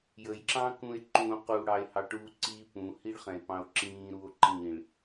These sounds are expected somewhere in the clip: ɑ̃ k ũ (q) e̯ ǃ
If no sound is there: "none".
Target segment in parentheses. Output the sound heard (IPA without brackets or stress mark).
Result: none